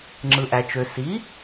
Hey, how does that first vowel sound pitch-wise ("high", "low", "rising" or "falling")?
low